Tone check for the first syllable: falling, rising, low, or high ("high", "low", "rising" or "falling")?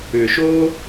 low